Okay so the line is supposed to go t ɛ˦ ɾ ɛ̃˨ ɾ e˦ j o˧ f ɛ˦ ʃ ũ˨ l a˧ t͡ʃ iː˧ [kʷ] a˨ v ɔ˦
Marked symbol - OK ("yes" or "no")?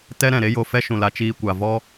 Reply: yes